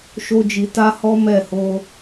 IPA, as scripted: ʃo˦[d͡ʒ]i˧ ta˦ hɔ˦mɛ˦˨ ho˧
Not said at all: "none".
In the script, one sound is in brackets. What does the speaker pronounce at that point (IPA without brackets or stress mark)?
d͡ʒ